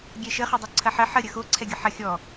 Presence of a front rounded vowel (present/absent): absent